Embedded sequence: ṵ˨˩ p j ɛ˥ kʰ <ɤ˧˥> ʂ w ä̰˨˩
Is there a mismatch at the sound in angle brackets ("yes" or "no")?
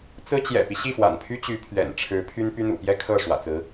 yes